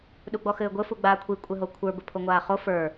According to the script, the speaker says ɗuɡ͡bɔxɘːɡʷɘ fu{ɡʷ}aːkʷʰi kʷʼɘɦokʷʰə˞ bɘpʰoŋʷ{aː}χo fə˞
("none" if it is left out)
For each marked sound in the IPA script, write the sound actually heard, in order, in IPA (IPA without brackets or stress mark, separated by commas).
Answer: ɡ͡b, aː